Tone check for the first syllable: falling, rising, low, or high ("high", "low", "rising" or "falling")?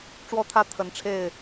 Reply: high